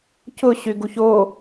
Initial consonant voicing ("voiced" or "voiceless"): voiceless